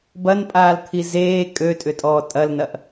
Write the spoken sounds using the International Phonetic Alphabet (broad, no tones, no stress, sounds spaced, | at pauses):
b ɐ n pʼ aː l t̪ʰ i z eː kʼ ø tʼ ʏ tʼ ɔː tʼ ɐ l n ɐ ʔ